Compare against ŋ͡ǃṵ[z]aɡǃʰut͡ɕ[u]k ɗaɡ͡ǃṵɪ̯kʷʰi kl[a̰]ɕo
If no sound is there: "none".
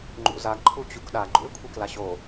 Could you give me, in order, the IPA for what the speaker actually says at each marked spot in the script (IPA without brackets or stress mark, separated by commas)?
z, u, a